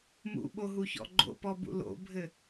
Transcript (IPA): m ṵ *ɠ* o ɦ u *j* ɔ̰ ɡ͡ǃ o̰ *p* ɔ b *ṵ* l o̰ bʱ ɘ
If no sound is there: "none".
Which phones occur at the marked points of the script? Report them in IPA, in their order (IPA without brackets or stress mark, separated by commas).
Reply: ɓ, ç, p, ṵ